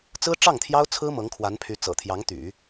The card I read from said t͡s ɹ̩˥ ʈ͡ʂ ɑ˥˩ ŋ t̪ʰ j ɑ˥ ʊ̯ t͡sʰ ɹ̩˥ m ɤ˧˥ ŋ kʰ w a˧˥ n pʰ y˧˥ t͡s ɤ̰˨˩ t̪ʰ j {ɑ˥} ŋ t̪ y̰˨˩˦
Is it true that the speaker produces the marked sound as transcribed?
no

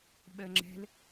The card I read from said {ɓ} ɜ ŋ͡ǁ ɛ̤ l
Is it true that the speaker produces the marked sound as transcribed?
yes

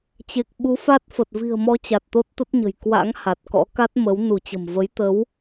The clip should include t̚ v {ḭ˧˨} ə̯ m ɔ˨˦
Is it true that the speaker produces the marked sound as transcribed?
no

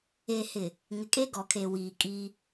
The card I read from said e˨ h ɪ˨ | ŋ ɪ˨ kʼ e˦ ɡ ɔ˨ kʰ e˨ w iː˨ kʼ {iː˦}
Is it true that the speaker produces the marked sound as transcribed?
yes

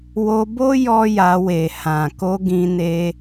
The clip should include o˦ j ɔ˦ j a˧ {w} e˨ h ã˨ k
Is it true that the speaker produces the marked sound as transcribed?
yes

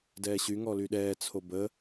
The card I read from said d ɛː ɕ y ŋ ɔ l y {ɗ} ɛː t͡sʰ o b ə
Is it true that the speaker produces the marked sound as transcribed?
yes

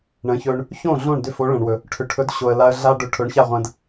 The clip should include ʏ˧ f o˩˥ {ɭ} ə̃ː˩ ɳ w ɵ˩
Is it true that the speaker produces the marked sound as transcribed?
yes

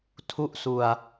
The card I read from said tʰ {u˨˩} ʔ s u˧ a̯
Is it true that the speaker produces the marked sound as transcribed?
no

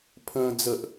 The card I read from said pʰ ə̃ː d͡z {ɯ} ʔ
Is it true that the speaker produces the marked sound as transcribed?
no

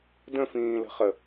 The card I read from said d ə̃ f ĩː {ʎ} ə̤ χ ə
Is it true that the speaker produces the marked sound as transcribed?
no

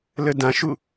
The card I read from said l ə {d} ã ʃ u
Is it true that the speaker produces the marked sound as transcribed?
yes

